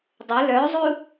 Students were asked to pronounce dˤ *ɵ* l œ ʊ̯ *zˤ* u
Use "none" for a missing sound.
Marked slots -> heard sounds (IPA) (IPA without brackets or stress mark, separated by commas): ɵ, zˤ